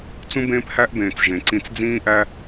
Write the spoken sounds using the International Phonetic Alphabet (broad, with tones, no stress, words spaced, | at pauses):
t͡sũ˦bẽː˦phæ˦ʔbẽː˨t͡s ʒẽ˨ǀĩ˧t͡s d͡zĩː˦ʔæ˦